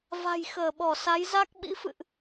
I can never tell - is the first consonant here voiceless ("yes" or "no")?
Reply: no